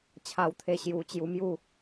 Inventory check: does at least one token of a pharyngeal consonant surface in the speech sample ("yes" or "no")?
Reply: no